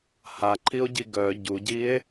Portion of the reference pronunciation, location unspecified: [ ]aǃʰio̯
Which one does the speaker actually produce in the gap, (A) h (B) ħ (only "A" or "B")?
A